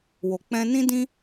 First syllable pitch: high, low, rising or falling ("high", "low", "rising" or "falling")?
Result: low